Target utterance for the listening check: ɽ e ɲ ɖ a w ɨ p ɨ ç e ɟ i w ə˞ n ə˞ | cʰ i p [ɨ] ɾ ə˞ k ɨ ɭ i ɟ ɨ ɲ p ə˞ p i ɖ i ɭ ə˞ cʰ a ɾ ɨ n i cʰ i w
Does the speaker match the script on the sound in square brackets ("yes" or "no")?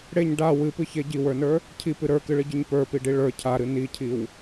yes